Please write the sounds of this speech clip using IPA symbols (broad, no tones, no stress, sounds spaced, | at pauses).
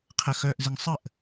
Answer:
qʰ ə x œː ʔ z ɪ ŋ sˤ ə ʔ